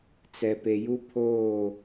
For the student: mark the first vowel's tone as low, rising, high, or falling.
low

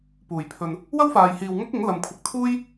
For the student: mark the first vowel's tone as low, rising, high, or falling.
low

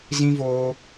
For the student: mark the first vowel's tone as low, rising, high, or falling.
high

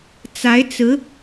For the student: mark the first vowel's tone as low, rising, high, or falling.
rising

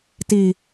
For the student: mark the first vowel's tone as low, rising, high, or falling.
low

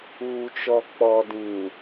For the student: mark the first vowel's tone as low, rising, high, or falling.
low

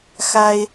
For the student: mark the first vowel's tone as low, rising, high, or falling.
high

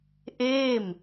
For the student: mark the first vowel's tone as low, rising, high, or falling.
falling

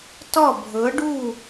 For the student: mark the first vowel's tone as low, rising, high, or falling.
falling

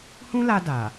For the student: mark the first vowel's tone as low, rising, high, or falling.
high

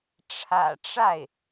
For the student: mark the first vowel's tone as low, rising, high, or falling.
low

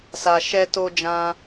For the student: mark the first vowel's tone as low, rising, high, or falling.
low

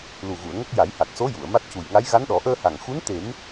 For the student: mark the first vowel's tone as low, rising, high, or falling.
low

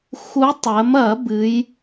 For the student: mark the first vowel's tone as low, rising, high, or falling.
rising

